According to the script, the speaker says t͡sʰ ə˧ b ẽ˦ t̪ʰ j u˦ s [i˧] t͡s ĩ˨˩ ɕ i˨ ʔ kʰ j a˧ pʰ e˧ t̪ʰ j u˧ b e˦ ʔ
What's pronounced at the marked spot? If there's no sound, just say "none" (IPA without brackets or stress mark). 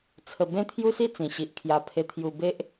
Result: i˥˧